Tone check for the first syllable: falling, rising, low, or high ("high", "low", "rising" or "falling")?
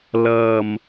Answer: low